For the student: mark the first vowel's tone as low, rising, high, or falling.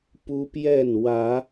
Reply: high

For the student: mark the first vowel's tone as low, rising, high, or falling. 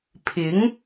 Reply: rising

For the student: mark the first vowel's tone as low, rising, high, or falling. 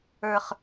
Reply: low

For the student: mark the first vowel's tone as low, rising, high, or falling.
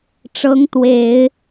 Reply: rising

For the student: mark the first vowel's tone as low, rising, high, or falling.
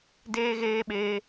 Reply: high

